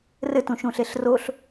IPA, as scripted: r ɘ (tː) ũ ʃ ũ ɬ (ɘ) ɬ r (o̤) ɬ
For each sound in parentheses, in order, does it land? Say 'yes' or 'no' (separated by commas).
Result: no, no, no